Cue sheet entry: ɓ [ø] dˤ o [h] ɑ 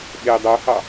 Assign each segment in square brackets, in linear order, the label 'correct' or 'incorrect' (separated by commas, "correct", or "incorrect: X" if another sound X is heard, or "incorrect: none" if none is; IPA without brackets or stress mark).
incorrect: e, correct